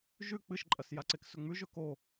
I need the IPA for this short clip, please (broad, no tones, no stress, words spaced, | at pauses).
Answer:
ʒʉ k͡pɨʃǃʼɐs jaǀeksɵŋ͡mʉ ʒɵko